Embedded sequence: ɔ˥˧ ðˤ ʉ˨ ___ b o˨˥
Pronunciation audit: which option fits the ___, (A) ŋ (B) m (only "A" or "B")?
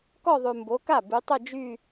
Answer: B